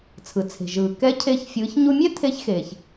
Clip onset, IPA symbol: t͡sʰ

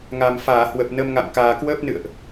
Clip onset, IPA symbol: ŋ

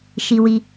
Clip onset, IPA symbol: ʃ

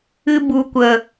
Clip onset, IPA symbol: ɨ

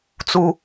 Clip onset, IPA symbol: t͡s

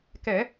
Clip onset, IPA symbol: k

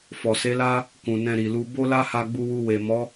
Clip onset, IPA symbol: f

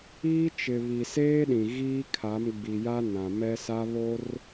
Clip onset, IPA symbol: iː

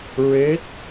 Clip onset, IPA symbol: ɹ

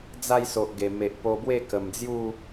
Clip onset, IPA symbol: d͡z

